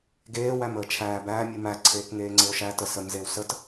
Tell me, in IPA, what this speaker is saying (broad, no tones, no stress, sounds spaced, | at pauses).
ɡ eː w æ m əː t͡ʃʰ æː b æː mʲ u m æ ǀʰ eː k ŋ eː ŋ͡ǀ e o̯ ʃ æ t ə s ə m z e w s ə t